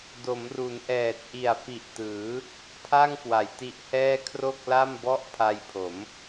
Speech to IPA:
do˩˦mru˩˦nʔɛː˨˩t̚ ʔi˨˩a̯fi˨˩ʔtɯː˩˦ | pʰa˥˩ŋkwa˩˦jti˦˥ʔhɛː˥˩ kʰro˥˩k̚la˥˩mbɔ˥˩ʔ pʰa˧jpʰo˩˦m

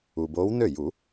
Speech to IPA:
u˩boː˨˦w nø˥˩ju˨˩˦

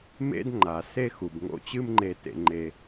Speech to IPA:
mḛ˦d ŋ͡ǃa˨ se˦xu˨bŋo̰˦ t͡ɕɨ˦mŋ͡ǃe˧ tḛ˦ŋ͡ǃe˦

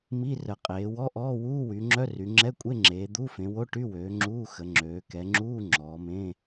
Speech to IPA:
mi˧˥˧rə˩˧ qʼeː˩˧wɔ˧˥˧ʔɔː˧˥˧ wuː˧˥˧wy˩˧ŋ͡ǁœ˧˥˧ ry˩˧ŋ͡ǁɛ˧˥˧ kʷʼe˧˥˧ŋ͡ǁeː˩˧ d̪u˧˥˧ fẽ˩˧wo˧˥˧ʈy˧˥˧wøː˩˧ ŋ͡ǁuː˧˥˧xə˩˧ŋ͡ǁøː˩˧ kɛ˩˧ŋ͡ǁuː˧˥˧ ŋ͡ǁɔː˩˧mẽ˧˥˧

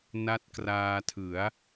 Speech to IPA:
na˦˥t̚kraː˧tʰɯ˩˦a̯

